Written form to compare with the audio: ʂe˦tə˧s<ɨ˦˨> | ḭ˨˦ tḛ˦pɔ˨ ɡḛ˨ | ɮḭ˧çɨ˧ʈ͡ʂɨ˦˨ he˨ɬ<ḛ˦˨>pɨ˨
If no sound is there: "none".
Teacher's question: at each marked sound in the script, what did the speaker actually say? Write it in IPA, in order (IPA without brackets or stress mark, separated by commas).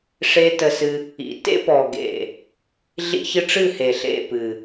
ɨ˧, ḛ˦˨